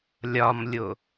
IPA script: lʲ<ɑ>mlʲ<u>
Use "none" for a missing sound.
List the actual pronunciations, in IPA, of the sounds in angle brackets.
ɒ, o

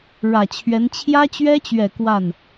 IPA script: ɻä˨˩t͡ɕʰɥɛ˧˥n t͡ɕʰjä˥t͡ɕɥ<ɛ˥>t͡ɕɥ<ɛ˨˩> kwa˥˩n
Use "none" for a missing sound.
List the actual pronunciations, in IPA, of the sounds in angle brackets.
ɛ˥, ɛ˨˩

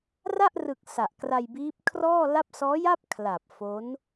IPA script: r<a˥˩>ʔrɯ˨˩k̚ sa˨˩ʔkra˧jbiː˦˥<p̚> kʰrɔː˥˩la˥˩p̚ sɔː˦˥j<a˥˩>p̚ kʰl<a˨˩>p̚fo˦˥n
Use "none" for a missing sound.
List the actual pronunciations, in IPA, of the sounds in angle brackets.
a˥˩, p̚, a˥˩, a˨˩

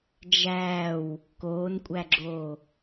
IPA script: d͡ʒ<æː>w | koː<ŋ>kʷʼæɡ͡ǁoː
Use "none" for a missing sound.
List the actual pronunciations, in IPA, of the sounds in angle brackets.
æː, n

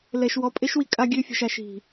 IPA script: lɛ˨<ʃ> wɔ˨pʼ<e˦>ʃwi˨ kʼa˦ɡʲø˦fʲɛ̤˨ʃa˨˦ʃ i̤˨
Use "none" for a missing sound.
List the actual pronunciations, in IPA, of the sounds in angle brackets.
ʃ, e˦

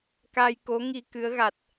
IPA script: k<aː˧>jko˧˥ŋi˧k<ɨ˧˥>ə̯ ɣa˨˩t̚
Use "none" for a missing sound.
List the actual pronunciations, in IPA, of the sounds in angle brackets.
aː˧, ɨ˧˥

